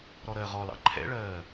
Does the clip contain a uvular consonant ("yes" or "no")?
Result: yes